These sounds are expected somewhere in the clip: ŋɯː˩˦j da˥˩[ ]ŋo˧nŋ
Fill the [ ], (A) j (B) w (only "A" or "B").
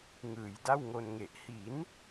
B